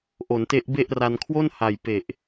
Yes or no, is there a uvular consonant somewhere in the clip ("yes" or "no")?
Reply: no